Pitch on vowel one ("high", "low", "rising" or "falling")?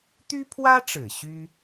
high